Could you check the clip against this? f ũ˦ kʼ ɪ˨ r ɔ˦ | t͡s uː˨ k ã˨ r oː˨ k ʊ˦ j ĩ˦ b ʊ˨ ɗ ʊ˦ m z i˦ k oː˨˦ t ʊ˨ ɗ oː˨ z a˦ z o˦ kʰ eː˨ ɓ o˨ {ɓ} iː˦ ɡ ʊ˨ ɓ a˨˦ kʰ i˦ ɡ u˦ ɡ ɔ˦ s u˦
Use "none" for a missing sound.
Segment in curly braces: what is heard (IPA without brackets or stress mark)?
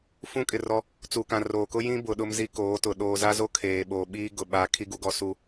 ɓ